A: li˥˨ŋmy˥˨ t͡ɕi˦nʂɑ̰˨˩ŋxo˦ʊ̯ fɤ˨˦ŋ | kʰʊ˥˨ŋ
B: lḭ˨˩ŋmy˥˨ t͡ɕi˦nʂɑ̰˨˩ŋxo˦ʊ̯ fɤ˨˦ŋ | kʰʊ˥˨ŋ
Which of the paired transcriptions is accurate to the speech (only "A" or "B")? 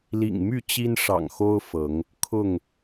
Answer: B